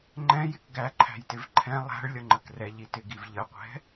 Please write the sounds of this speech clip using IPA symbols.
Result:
ŋ͡ǃ ɛ̃ j ɪ k ɡ æ ǃʰ æ̤ j t ɪ v ǃʰ ɛ̃ lˠ æ̤ ɭ lʲ ʌ ŋ͡ǃ ə k r ɛ ʎ i t ɪ ɡ i v ʎ ə qʷ ɛ̤

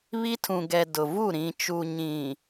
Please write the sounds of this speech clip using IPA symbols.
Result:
β i˦ tʰ ũ˨ ɡ ɛ˨ d ʊ˨ v u˦˨ ɾ ĩ˨ t͡ʃ u˨ ɲ ĩ˨

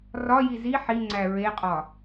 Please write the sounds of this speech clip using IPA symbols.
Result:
r ɒ j i z i ħ i ŋ͡ǀ æ ɹ e qʼ ɒ

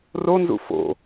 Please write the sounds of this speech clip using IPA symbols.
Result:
r o n z ṵ f o̰

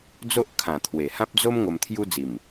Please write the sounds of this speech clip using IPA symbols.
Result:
d͡z o˦ ʔ kʰ ã˨˩ t̪ʰ w e˨˩ h ã˦ p̚ d͡z o˦ m ŋ o˧ m t̪ʰ j u˦ d͡z i˨˩ m

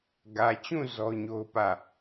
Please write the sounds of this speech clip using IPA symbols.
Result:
ɡ ä˨ t͡ɕ ũ˦˨ z ɔ˦ ɲ o˦ ʊ̯ p ä˦˨

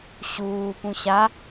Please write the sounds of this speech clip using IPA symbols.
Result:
ɕ uː p ũ ɕ a

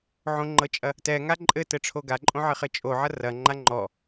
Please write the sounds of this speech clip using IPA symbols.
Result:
ʕ õ ŋ͡ǃ ɤ t͡ʃʼ ɐ | t ɛ ŋ a ǃʼ ɘ t ɘ ʈ͡ʂʰ o ɡ a ǃʼ õ ʕ ɘ χ ɘ t͡ʃʼ o ʕ ɐ r ɐ ŋ͡ǃ a ŋ͡ǃ ɔ

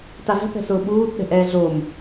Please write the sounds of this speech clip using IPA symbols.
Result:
t a v ɛ̤ p ɛ̤ s ʊː ɓ uː t ɗ ɛ̤ ʔ ɛː ɮ o m

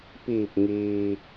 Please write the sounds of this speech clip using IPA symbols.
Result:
p iː˧˩ p̚ ŋ iː˩

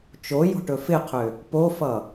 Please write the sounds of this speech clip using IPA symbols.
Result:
t͡ʃ o j o̤ ʈ ɵ f ɪ qʰ ʏ | p o f ʌ

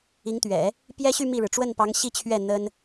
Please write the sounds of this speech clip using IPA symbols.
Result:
i˧˥ ŋ t̪ ɥ ɛ̰˨˩˦ | p j ɛ˥ ɕ y˥˧ m i˥˩ ɻ ɻ̩˩ ʈ͡ʂ w ə˥˩ n p ɑ˧˥ ŋ ɕ i˥˧ t͡ɕʰ ɥ ɛ˥˩ n̪ ə˥ n

